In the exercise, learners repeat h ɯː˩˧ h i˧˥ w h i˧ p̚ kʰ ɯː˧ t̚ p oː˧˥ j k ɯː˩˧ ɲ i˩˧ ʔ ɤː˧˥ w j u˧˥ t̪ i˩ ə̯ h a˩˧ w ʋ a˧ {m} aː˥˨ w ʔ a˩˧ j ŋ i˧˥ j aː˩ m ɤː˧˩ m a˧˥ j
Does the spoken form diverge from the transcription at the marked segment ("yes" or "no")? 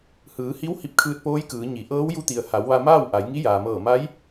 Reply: no